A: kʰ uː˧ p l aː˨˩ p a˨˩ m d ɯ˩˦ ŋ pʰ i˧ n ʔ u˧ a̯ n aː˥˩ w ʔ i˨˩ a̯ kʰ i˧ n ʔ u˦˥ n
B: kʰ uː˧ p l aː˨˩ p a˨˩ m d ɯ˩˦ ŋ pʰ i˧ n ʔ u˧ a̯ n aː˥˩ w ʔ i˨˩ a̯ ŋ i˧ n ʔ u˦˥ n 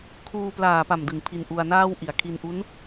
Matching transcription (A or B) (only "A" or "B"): A